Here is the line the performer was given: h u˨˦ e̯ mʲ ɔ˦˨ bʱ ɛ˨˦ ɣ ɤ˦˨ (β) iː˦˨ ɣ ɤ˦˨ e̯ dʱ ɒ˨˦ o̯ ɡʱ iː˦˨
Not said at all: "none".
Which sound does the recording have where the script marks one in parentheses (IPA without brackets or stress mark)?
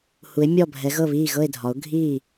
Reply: β